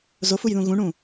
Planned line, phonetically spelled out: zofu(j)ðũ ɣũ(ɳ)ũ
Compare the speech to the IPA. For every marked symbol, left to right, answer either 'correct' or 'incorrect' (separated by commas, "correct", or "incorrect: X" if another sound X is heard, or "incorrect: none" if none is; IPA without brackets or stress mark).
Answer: correct, correct